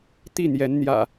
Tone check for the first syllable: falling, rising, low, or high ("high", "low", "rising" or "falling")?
falling